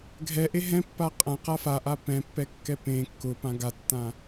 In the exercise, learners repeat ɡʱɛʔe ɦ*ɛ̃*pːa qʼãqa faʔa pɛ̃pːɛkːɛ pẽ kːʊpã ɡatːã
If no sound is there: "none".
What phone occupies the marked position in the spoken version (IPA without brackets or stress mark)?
ɛ̃